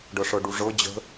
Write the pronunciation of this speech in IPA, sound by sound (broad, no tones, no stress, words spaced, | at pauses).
ɖɤʂɤɖuʐɤ d͡ʑə̤